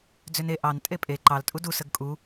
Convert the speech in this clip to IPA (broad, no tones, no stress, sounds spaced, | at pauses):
d͡z ʏ n e ʔ ɑ n tʼ e pʼ e ǃ ɑ l tʼ u d u s ə ɡ kʼ u